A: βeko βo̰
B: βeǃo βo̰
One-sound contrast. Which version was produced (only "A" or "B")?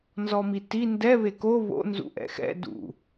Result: A